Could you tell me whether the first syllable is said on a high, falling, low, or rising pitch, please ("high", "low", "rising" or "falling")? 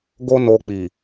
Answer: high